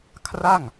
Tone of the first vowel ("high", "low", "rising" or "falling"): falling